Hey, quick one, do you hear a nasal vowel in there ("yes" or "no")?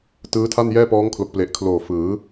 no